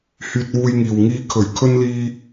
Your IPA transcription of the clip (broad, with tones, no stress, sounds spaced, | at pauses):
h yː˧ t̚ w uː˧ j ŋ iː˨ w ŋ iː˨˧ kʰ ɵ˨˩ ɥ kʰ ɵ˧ n l iː˧